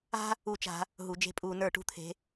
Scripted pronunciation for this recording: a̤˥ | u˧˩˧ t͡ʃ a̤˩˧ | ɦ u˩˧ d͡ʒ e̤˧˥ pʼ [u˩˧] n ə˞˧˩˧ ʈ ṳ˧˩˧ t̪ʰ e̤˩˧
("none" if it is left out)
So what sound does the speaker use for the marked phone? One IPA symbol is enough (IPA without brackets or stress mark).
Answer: uː˩˧